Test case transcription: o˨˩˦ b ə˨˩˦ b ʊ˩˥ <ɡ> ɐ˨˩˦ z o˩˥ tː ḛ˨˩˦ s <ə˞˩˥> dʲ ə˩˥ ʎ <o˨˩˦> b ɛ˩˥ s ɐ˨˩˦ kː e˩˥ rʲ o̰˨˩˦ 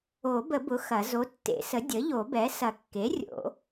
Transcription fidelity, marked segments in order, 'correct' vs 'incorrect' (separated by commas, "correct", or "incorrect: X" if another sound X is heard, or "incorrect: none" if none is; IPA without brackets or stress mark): incorrect: x, incorrect: ə˩˥, correct